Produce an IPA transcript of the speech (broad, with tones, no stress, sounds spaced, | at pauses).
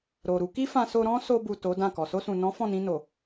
ɾ o˨ ɾ u˧ k i˦ f ã˧ s o˧ ɾ ɔ̃˦ s o˧ b u˨ t o˨˦ d ã˦˨ k ɔ˨ s o˧ s ũ˨ n ɔ̃˨˦ f ɔ̃˦˨ n ĩ˧ n o˨